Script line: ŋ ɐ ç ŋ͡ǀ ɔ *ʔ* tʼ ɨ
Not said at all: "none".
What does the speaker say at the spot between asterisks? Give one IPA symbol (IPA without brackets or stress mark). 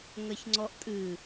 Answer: ʔ